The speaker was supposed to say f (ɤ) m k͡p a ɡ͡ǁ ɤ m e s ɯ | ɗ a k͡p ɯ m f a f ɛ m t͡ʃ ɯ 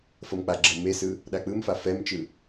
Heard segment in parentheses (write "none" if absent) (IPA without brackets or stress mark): ɤ